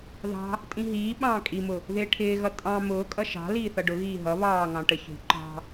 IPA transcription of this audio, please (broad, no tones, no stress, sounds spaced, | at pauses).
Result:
ð ɑ̤ | tʼ ĩ ɦ iː ɓ ɑ̃ː kʼ i m ʊ | ð ɪː ʈʰ ɪː ɣ ʌ tʼ ɑ̃ m ʊː kʼ ʌ ʃ ɑ̤ l iː θ ʌ ɖ ʊ ɣ iː ɦ ʌ β ɑː ŋ ɑ̃ ʈ ə ç ṳ ǃ ɑ̤